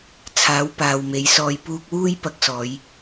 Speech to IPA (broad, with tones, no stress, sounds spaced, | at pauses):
t͡sʰ aː˨˥ w p aː˨ w m e˨˥ j s ɔː˧ j p uː˧ k̚ w uː˥ j p ɐ˧ k̚ s ɔː˨˧ j